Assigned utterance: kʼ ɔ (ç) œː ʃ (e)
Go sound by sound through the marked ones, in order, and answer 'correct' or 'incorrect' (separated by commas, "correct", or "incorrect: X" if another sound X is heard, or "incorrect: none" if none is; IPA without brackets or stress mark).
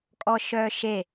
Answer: incorrect: ʃ, correct